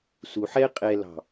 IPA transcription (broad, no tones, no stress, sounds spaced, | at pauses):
s u ħ ɛ qʼ ɛ l ɑ̤